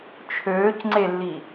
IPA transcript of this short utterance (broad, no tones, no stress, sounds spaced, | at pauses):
t͡ʃʰ øː c ŋ͡ǀ e lː i